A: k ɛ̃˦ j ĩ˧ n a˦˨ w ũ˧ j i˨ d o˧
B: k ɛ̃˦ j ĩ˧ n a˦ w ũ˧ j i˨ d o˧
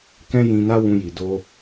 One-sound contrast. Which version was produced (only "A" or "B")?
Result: B